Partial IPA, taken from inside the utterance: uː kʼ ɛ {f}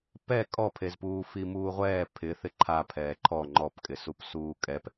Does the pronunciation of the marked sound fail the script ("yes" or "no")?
yes